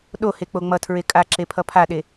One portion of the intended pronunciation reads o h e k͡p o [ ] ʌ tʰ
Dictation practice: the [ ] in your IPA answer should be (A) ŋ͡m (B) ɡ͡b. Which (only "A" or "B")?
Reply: A